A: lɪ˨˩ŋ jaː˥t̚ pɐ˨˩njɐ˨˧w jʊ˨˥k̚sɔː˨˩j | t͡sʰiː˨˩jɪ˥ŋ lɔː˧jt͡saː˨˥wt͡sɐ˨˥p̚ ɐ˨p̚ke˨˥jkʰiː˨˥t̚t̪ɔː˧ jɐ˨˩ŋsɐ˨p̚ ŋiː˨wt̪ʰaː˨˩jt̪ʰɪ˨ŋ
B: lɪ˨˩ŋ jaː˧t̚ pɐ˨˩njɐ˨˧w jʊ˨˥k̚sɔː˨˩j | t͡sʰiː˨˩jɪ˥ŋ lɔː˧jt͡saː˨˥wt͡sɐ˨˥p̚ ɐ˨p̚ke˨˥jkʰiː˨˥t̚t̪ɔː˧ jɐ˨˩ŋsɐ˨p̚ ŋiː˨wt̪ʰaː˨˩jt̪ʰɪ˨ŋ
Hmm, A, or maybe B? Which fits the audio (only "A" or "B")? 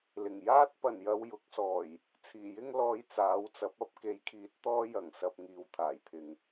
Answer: A